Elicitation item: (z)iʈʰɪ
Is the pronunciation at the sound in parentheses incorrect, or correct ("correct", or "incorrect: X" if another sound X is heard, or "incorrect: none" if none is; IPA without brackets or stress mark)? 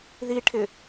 incorrect: ð